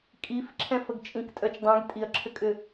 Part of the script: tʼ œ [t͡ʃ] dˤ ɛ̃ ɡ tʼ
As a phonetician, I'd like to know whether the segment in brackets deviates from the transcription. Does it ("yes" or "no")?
no